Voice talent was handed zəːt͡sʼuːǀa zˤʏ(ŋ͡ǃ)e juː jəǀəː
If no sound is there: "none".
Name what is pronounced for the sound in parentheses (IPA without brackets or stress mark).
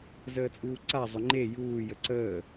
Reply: ŋ͡ǃ